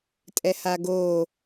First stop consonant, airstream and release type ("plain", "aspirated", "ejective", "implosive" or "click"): ejective